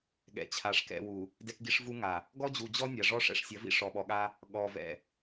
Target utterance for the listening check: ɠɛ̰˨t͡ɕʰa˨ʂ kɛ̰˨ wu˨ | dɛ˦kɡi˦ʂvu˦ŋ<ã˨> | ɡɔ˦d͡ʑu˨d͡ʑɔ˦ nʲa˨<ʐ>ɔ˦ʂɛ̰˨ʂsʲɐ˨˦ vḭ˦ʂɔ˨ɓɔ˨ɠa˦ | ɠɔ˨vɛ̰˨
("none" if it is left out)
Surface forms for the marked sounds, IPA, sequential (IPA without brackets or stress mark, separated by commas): a˨, ʐ